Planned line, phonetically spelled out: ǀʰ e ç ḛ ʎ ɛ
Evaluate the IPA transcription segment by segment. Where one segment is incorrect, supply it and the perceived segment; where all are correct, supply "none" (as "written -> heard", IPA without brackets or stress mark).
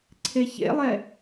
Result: ʎ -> lˠ